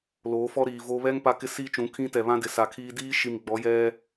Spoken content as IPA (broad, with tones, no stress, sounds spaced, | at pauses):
l oː˨˦ f ɔ˦ ɾ iː˨ v o˦ β ɛ˦ ŋ p a˦ k ɪ˦ s iː˦ t͡ʃ ũ˨˦ kʰ ĩ˦ t ɛ˨ β ã˦ d ɪ˨ s a˨ kʰ iː˦ d iː˦ ʃ i˨ m ɡ͡b ɔ˨˦ j ɛ˦